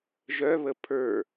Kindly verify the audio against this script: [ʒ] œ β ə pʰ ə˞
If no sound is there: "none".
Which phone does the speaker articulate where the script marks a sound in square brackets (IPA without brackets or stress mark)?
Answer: ʒ